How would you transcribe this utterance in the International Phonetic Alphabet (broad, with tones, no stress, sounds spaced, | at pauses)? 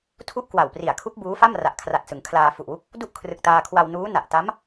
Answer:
tʰ u˥˩ ʔ k w a˨˩ w p r i˨˩ a̯ kʰ u˦˥ k̚ b uː˦˥ f a˥˩ m r a˨˩ ʔ kʰ r a˨˩ t̚ s ɯ˩˦ ŋ kʰ l aː˧ f u˨˩ ʔ w u˦˥ k̚ | d u˥˩ ʔ kʰ r ɯ˨˩ k̚ t aː˧ kʰ w a˧ w n uː˦˥ n a˨˩ ʔ t a˦˥ m